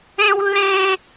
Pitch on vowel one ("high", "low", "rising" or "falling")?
high